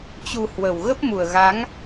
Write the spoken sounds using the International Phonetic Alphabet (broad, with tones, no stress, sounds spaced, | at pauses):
t͡ɕ u˧ h w ə˨˩ w ɣ ə˦˥ p̚ m u˨˩ ə̯ ɣ a˨˦ ŋ